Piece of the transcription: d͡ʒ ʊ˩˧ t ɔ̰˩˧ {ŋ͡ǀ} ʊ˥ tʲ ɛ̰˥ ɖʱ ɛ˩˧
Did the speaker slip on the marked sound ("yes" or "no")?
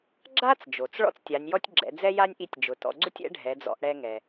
yes